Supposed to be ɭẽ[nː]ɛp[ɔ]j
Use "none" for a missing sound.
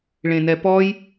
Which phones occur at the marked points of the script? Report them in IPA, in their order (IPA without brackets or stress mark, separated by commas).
n, ɔ